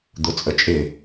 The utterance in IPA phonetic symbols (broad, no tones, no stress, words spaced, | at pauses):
d̪ʊt͡sʼət͡ʃʼɪ